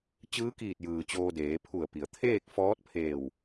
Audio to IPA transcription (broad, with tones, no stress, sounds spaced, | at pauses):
t͡ɕ ɯː˧˥ k iː˧˩ t̚ j ɯː˩ t͡ɕ oː˧ d eː˩˧ pʰ u˧˩ ə̯ p i˩ ə̯ t̪ʰ eː˥˨ k̚ f ɔː˧˥ t̚ pʰ eː˧˩ w